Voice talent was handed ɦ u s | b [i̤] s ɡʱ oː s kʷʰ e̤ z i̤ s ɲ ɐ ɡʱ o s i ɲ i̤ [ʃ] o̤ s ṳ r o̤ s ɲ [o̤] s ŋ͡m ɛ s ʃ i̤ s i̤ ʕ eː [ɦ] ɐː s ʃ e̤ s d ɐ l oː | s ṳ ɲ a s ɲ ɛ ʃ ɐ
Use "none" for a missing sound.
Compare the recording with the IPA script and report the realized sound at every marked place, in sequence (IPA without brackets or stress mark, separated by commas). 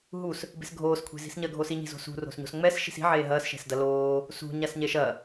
e̤, z, o̤, ɦ